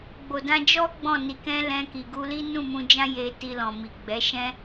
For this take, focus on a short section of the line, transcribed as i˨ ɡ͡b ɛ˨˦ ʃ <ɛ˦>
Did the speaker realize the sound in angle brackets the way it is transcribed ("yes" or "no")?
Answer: no